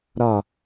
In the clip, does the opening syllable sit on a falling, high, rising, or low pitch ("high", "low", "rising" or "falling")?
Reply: falling